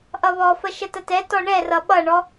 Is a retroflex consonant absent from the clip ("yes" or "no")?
no